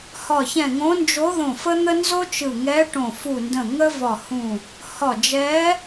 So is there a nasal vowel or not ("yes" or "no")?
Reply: yes